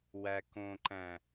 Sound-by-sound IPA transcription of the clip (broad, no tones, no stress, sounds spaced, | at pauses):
w æ k õ ǃ æ̃